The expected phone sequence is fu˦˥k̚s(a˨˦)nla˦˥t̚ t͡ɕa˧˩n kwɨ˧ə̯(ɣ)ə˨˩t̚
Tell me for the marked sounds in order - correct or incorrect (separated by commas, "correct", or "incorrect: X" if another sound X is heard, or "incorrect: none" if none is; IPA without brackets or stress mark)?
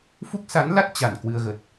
correct, correct